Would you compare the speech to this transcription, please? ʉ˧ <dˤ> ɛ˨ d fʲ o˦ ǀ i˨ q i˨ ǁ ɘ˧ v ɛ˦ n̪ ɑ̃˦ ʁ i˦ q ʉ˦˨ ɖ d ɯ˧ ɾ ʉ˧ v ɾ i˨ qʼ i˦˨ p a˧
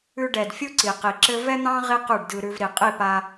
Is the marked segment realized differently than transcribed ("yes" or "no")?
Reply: yes